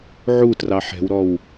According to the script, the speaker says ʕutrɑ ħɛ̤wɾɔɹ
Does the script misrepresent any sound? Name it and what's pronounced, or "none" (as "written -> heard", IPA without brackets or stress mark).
ɹ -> w